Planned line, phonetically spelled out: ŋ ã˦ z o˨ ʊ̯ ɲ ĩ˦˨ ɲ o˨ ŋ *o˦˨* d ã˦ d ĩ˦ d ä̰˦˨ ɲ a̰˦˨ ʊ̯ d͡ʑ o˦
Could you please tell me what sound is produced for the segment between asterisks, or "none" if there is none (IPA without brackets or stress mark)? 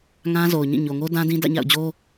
o˦